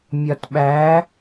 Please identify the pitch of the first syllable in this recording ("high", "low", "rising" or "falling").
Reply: low